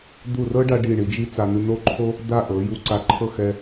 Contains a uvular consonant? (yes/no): no